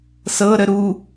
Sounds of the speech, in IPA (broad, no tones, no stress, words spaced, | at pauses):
sɤɾə ɾu